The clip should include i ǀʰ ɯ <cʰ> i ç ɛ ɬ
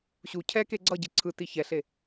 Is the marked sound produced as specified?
no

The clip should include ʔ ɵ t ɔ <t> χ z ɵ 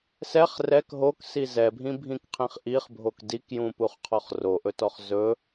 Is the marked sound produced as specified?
no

